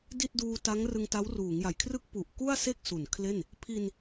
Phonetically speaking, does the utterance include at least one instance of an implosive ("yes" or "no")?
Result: no